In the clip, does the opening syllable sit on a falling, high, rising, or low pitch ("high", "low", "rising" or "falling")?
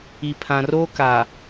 low